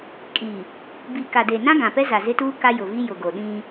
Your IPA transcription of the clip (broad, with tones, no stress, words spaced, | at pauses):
kʼi˨ | bi˨ka˨de˨nã˦ ɡã˨pɛ˦za˨ zɪ˦tuː˦ ka˦jʊ˨vi˦ jʊ˨ɡo˨ɗĩ˦